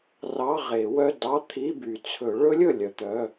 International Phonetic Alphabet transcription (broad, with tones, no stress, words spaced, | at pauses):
rɑ˧˥˧ʁe˨˩˦wœ˧˥˧ dɑ˧˥˧t̪ʰi˧˥˧by˩t͡sʰɵ˨˩˦ ɭɵ˦˥lʲɵ˧˩ lʲœ˩t̪œ˩˧˩